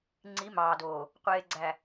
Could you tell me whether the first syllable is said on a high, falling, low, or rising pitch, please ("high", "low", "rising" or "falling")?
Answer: rising